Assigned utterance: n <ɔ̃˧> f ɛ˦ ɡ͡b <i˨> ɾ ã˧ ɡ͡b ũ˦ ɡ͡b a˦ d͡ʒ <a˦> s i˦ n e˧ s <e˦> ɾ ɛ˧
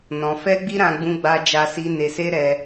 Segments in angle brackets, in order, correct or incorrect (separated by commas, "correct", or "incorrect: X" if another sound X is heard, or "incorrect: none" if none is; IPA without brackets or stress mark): correct, incorrect: i˦, correct, correct